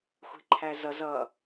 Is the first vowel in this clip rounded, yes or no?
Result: no